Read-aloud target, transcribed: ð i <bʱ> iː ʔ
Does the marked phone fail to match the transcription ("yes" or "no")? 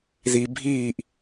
no